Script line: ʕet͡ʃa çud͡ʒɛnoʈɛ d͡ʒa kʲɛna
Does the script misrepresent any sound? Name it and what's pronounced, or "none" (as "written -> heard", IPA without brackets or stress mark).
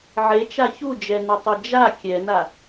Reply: ʈ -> tˤ